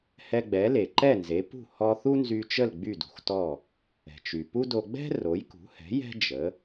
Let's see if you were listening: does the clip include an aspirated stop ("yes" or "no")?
no